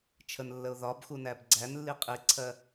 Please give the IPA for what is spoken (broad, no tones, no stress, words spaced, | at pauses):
t͡ʃʰənlːəʊ̯ ðɒb xunæbɡ͡ǀænlːi qʼiǀʰɜ